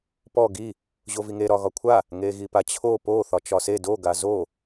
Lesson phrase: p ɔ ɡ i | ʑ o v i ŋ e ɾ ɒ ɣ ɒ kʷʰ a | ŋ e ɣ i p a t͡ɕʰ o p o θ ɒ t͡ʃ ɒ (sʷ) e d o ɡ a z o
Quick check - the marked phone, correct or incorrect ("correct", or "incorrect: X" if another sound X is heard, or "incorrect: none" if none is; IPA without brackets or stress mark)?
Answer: incorrect: s